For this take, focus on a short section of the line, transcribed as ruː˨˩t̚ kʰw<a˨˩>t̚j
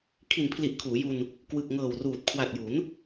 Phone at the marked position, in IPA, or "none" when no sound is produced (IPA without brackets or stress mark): a˨˩